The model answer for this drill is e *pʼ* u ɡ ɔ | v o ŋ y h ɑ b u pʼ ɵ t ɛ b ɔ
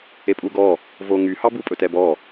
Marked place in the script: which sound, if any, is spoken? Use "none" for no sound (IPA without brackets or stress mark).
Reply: pʼ